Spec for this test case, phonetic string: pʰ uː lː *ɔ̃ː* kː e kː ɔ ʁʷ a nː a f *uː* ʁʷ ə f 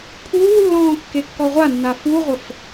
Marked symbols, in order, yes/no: yes, no

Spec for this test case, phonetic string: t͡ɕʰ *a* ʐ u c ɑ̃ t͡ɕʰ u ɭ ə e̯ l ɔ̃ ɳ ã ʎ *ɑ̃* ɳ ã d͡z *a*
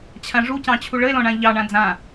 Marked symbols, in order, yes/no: no, no, no

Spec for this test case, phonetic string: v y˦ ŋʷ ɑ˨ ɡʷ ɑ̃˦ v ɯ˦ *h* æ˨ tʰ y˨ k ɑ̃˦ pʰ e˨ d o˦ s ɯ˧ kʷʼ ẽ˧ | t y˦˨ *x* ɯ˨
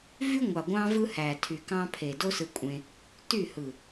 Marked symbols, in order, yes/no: yes, no

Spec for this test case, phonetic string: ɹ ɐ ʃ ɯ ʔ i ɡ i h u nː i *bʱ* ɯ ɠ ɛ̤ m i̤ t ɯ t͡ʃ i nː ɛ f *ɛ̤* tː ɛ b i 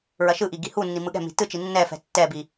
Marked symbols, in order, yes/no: no, yes

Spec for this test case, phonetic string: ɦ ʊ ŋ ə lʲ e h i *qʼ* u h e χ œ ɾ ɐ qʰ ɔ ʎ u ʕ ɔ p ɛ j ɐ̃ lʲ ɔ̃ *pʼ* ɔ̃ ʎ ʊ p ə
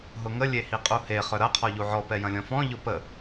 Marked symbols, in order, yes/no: yes, no

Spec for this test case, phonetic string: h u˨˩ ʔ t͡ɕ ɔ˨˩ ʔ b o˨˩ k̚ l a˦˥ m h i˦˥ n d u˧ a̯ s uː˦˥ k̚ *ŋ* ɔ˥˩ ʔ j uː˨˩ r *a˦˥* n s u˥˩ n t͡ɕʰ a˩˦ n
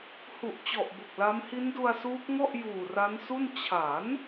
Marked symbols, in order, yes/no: yes, yes

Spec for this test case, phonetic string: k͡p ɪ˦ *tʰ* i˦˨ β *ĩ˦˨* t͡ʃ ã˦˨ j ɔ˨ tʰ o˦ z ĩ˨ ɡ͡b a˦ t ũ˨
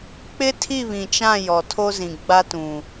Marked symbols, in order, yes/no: yes, no

